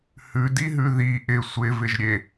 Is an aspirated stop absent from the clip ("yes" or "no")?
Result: yes